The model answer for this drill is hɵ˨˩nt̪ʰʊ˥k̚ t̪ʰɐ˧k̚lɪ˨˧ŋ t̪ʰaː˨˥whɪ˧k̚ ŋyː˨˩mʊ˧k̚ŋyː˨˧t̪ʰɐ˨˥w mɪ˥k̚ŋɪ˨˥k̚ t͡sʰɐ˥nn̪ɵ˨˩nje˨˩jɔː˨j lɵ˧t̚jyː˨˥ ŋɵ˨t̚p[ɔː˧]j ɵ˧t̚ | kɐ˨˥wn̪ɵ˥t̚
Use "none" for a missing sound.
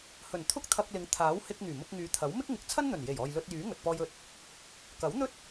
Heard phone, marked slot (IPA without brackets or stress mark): ɔː˧